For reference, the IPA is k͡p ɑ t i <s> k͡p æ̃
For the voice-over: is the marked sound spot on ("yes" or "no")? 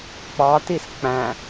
yes